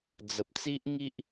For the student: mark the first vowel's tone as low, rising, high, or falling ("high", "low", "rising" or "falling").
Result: low